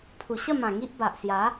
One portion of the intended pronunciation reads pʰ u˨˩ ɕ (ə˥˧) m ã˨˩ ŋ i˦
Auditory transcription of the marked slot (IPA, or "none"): ə˥˧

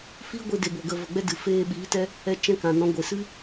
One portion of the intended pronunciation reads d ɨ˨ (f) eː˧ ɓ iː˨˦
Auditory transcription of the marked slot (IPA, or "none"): f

